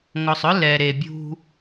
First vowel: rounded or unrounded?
rounded